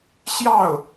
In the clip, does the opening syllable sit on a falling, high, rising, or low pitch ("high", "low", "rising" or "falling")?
falling